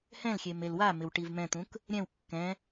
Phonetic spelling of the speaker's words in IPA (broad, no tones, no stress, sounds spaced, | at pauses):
h ɛ̃ l xʲ e m e l w a m ɪ w ʈ i v m ɛ̃ t̪ ũ k | ɾʲ ɛ̃ w kː ɛ̃